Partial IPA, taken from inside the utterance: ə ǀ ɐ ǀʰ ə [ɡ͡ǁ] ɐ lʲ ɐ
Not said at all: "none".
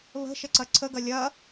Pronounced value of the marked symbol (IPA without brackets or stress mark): ɡ